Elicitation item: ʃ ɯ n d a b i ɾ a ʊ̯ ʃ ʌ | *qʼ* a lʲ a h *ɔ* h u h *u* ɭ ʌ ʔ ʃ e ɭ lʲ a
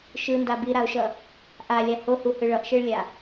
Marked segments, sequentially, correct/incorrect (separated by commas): incorrect, incorrect, incorrect